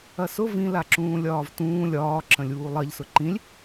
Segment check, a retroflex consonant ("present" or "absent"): absent